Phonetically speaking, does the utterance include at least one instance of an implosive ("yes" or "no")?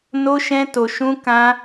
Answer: no